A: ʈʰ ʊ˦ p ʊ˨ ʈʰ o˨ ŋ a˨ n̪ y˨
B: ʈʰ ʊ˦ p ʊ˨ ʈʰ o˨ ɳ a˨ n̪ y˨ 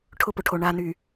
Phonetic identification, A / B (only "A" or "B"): B